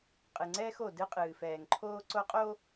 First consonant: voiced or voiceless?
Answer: voiceless